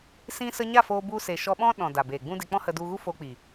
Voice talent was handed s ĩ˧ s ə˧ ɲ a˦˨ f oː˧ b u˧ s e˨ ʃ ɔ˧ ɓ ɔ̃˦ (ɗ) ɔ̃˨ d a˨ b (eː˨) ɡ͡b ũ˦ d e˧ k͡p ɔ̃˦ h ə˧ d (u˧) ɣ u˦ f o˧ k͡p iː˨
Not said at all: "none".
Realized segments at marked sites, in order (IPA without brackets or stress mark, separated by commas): ɗ, eː˨, u˧